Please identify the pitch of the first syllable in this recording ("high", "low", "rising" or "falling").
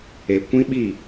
low